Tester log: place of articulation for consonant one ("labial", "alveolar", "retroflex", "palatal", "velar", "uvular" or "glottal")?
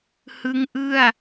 glottal